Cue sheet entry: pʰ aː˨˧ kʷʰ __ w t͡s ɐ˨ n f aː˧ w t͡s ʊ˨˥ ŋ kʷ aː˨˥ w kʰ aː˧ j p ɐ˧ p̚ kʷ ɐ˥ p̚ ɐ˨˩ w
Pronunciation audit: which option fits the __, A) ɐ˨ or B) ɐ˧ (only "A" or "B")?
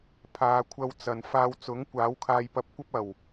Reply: B